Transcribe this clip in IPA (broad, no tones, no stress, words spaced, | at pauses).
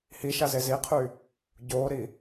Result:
hiʃaze ziqʰy | ɟoːɾi